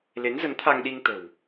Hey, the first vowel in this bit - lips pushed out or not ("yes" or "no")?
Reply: no